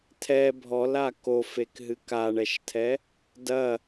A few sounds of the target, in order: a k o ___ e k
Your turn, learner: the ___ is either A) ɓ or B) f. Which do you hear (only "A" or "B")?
B